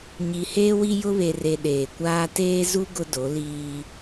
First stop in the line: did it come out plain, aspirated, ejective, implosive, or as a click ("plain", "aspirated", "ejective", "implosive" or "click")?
implosive